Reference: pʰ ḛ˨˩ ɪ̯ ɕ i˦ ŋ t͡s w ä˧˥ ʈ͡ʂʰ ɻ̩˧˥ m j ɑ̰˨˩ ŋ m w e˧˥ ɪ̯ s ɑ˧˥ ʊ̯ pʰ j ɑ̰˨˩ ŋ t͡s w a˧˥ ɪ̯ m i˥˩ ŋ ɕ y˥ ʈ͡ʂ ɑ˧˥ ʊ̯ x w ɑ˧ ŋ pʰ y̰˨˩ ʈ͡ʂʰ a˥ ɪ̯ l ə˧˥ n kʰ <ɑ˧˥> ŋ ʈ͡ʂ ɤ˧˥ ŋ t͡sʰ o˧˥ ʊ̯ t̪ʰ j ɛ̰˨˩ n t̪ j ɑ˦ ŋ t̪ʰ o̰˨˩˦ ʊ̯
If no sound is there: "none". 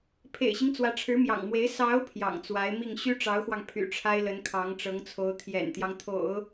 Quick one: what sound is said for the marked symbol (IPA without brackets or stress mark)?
ɑ˧˥